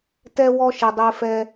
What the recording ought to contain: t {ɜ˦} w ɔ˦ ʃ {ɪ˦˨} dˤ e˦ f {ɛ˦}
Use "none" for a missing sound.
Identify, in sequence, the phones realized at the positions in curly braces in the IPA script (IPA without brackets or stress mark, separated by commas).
ɛ˦, ɪ˨, ɛ˦